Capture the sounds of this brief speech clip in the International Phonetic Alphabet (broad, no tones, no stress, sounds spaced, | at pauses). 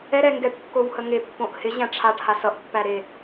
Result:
ɛ ɾ ɛ ŋ ɡ ɛ ʈ kː o w h ə ŋ e pː õ ʔ h ɪ ʑ æ̃ ʈ͡ʂʰ a ʈ h a s ʌ ʔ pː æ ɾ e